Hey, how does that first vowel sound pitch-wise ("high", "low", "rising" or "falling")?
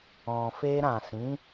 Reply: low